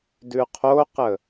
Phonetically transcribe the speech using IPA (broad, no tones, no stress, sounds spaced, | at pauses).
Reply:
d ʉ qʰ o q ə